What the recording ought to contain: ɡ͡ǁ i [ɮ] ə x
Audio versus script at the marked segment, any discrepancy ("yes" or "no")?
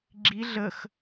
no